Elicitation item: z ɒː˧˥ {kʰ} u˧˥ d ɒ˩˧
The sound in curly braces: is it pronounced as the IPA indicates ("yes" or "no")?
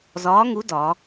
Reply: no